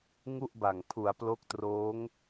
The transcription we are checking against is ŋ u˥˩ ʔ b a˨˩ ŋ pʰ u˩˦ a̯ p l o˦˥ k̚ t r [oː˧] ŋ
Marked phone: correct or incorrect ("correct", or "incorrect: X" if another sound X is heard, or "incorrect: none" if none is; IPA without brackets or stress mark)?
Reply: incorrect: oː˦˥